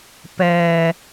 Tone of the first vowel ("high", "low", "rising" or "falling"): low